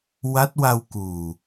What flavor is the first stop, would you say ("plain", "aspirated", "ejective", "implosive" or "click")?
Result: plain